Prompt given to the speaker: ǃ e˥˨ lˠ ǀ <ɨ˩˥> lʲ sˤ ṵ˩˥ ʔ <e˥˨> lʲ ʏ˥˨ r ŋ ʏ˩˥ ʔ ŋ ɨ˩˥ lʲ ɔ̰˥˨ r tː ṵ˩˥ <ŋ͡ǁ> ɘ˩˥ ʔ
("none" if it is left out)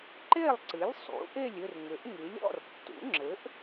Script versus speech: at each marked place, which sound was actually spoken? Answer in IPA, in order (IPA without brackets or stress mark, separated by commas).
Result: ɨ˩˥, e˥˨, ŋ͡ǁ